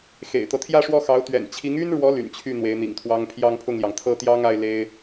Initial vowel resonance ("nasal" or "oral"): oral